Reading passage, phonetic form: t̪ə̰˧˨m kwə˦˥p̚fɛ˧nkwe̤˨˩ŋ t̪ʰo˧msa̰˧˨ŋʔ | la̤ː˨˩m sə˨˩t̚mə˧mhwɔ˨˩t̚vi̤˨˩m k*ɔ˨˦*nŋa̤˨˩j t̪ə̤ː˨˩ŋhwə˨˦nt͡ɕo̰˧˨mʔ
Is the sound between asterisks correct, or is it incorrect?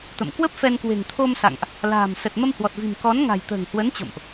correct